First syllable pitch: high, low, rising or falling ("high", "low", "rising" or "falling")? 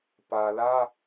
low